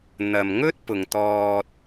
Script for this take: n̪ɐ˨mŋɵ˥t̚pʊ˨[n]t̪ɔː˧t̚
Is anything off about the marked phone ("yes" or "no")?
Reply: yes